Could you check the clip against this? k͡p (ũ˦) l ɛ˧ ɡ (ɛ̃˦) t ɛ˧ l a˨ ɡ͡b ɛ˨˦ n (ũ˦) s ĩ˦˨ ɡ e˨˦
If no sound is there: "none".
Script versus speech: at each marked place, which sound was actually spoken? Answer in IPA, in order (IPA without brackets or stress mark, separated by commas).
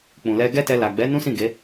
ũ˨, ɛ˦, ũ˦